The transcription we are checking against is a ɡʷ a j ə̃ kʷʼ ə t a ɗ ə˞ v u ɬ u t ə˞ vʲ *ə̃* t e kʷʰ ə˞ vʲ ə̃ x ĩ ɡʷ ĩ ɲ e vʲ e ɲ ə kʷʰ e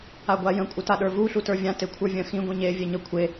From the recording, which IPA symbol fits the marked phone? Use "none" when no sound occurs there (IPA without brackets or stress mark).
ã